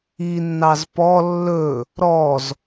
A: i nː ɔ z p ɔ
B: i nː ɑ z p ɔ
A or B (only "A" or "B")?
B